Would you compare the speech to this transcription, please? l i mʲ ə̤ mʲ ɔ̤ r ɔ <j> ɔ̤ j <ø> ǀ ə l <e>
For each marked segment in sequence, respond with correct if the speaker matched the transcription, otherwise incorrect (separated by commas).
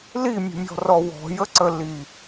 incorrect, incorrect, incorrect